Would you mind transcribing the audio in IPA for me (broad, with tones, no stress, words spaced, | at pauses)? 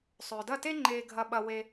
sˤʏː˨dɐ˦˨te˦ ŋ͡ǃeː˧ ɡʱɐ˧ɓɐ˧ we˧